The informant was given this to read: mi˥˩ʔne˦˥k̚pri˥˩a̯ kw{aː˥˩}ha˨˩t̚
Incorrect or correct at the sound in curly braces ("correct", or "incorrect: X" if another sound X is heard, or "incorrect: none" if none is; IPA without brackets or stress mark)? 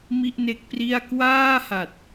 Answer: correct